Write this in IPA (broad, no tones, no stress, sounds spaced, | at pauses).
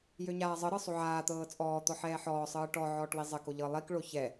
j ø ɲ aː zˤ ɤ ɾ ɯ sˤ o ʕ aː t̪ ɤː t͡sʼ ɔː t̪ ɔ ħ ɛː ħ ɔː sˤ ɯː ʈ ɔ ʕ ɔː ʈ w i zˤ ə k o ʎ ɤ lˠ i k ɭ o ç ɛ